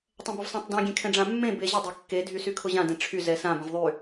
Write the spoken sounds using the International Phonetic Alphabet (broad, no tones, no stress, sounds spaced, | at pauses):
tˤ ɛ̃ b ʊ v sˤ ẽ tˤ d ẽ ɡʲ ẽ kʰ ɛ̃ ɖ͡ʐ ã mː ẽ b e ʑ ʊ dˤ ɛ kː e dʱ y s y kʰ ʊ ʑ ã d ɛ̃ ʈ͡ʂʰ y z ɛ s ã b ɛ̃ v ðˤ y